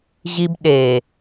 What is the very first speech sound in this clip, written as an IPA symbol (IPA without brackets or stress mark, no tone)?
ʑ